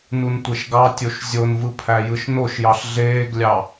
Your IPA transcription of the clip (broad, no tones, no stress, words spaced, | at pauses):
nuntʷeʃɡɑtʲoʃ zʲonvɯ pʰæjɯʃnoʃjɑɬ ɮeːɡlʲɑ